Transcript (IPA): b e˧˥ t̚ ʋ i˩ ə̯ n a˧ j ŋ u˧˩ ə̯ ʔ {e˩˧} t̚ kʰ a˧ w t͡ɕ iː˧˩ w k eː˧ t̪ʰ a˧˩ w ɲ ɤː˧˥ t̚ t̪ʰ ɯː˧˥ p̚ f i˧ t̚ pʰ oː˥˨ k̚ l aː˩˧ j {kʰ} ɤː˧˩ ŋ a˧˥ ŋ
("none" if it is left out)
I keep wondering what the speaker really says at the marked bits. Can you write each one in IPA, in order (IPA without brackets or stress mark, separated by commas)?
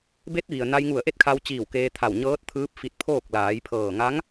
e˥˨, pʰ